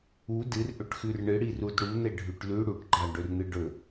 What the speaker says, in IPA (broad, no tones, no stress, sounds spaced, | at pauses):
u d ɨ r ʔ ɵ ʈ x ʉ r ɳ ɨ ɽ i r u d ɽ u n̪ e ɖʱ ʉ ʈ l ʉ ɽ u ʈ ɡ͡ǃ a ɖ ɵ r n̪ ɨ ɖ ɵ